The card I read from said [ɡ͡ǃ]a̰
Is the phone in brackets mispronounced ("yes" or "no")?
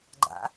no